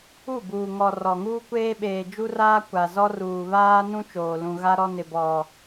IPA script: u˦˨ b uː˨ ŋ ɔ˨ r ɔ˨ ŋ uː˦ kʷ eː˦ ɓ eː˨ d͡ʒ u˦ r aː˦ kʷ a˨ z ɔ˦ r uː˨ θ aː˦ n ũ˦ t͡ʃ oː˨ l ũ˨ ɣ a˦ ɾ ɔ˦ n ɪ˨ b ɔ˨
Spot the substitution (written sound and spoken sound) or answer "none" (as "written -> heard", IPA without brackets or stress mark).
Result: θ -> β